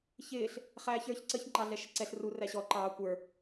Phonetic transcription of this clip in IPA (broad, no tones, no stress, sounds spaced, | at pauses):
ç ɪː ɬ | χ æː ç ə˞ ç ǀ ə ç ŋ͡ǃ ɑ ɮ ɛ ʃ ə ǀ ɛ ɬ r u r æ ɕ ɔ ǃ ɑː kʷ ə˞